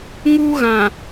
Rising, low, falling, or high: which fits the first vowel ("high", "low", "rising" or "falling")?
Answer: high